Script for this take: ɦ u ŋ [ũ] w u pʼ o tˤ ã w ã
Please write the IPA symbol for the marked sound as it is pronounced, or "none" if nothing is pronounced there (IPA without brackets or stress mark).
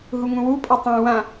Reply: ũ